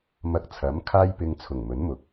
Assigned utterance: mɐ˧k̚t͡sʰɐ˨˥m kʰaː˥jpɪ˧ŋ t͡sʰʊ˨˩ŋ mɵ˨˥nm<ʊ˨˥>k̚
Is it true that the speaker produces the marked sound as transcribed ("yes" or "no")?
yes